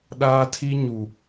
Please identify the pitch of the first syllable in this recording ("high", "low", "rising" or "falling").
high